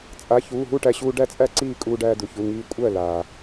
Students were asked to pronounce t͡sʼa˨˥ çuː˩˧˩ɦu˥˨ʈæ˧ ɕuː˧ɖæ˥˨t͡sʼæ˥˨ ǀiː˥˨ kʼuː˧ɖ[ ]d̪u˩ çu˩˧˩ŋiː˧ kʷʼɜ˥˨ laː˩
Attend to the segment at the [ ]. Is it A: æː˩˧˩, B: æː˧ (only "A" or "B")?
B